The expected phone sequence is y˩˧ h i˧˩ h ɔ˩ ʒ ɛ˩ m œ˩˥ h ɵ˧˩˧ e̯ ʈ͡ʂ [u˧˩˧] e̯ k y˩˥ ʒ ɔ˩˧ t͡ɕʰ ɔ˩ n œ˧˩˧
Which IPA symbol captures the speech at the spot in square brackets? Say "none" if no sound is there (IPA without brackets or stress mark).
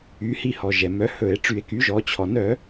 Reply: y˧˩˧